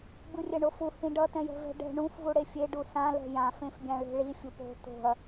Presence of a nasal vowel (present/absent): present